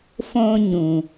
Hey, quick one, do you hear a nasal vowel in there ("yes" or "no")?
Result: yes